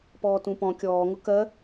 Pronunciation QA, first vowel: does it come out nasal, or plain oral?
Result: oral